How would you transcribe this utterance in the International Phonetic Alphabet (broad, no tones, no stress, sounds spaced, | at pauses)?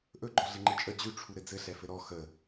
ʔ ɵ ɡ͡ǃ ɔ ɮ ɘ ŋ͡ǃ ɘ t͡ʃʼ ə d͡ʑ ʉ ʈ͡ʂʰ u ɾ ɘ d͡z ɘ ɬ ɛ f ɘ ɾ ɔ x ə